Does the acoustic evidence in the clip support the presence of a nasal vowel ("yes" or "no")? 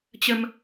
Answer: no